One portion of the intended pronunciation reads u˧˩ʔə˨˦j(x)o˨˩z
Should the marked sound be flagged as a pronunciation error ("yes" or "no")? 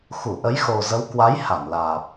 no